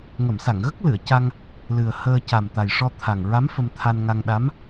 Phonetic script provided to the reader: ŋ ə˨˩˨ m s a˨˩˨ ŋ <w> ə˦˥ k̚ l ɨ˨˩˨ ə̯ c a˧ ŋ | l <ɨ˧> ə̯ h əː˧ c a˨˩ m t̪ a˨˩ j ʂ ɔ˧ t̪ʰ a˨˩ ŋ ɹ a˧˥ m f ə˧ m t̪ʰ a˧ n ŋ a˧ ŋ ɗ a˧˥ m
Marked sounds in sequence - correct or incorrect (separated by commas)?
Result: incorrect, incorrect